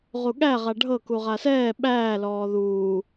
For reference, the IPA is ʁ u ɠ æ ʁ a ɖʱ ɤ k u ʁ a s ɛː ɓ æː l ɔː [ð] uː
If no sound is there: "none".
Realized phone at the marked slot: ð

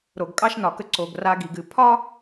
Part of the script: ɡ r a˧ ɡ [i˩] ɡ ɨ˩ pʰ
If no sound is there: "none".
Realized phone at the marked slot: i˩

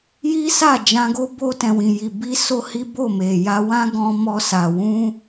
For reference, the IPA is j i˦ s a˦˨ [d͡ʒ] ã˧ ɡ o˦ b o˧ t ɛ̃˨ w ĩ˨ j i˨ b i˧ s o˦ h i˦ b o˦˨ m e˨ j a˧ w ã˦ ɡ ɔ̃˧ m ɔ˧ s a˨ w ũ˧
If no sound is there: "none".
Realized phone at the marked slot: d͡ʒ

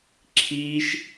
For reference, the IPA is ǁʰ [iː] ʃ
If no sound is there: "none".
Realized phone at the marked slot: iː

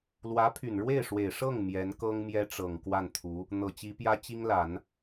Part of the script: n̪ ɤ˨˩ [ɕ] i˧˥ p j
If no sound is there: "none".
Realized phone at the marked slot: t͡ɕ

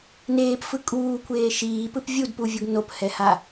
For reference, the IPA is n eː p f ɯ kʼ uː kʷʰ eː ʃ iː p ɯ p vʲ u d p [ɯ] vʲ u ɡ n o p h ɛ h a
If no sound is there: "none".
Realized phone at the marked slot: u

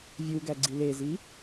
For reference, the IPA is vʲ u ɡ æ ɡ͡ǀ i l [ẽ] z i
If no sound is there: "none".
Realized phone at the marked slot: e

